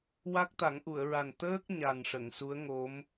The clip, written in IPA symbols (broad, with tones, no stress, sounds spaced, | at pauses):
w a˦˥ k̚ t̪ a˨˩˦ ŋ ʔ u˨˩˨ ə̯ ɹ a˨˩ n t̪ əː˦˥ k̚ ɲ a˨˩ n ʂ ə˨˩˨ ŋ s u˧˥ ə̯ ŋ o˧˥ m